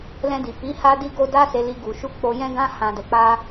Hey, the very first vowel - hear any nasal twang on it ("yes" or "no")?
yes